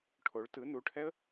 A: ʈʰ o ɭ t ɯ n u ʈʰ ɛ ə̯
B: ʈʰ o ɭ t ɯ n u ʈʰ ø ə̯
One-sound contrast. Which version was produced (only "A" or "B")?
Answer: A